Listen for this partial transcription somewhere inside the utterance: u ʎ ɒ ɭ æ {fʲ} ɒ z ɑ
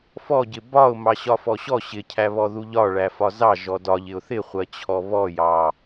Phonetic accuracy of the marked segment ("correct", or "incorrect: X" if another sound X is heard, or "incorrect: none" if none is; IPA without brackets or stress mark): incorrect: f